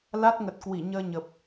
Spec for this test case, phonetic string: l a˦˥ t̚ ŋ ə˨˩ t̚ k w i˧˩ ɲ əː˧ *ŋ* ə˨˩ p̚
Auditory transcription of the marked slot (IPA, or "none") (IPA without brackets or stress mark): ɲ